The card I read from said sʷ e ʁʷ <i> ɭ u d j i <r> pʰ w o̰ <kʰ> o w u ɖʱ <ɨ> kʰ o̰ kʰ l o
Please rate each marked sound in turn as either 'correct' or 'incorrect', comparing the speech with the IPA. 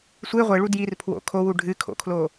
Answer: incorrect: e, correct, correct, correct

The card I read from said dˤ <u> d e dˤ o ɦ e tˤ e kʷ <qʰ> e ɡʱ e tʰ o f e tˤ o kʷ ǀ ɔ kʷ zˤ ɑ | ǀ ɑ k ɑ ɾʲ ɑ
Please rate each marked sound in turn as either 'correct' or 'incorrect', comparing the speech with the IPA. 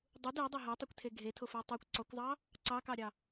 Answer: correct, incorrect: tʰ

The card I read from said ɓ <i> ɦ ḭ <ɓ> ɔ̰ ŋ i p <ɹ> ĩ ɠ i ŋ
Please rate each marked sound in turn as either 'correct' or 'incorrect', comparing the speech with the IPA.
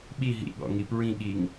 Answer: correct, incorrect: ɠ, correct

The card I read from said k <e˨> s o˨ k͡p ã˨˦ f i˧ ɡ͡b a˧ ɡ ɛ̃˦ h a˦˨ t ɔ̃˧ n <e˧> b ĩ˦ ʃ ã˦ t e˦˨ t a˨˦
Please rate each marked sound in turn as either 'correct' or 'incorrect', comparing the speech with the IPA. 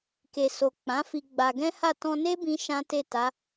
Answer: correct, incorrect: e˦

